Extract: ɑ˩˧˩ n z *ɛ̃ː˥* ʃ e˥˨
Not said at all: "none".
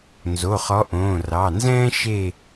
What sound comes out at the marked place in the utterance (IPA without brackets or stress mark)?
ɛ̃ː˥